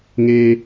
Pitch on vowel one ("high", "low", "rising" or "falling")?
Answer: high